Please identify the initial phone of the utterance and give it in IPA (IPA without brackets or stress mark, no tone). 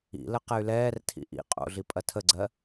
ḭ